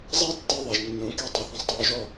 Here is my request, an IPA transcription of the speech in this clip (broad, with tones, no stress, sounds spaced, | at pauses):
zˤ i˦ tː i˧ ðˤ i˨ ʒ nː ũ˨˦ k e˧ tˤ i˨ θ ɐ̃˧ sˤ tˤ uː˧ ʒ ɔ˦˨